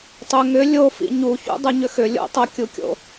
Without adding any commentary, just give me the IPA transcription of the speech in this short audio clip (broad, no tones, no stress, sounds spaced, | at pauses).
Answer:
tˤ ʏ ŋ ʏ lʲ o f ḭ ɲ u ç ṵ dˤ u ɲ ʏ x ʏ lʲ o̰ tˤ o kʲ u kʲ o̰